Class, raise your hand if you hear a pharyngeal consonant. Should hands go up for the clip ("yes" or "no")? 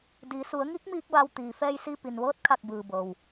no